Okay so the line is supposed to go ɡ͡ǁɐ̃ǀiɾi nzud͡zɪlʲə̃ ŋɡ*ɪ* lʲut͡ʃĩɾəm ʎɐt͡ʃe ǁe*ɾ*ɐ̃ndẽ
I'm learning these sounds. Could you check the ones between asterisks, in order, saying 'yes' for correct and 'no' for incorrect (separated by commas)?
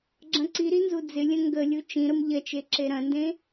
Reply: no, yes